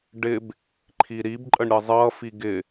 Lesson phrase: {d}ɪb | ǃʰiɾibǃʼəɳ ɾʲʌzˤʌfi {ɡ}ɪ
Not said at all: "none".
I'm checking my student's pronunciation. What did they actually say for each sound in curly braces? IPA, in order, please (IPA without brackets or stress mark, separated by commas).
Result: ɖ, ɡ